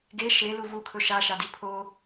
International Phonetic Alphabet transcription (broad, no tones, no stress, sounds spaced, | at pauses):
ɡ e ʃ e l u v u kʰ ɵ ʃ a ʃ a d i pʰ o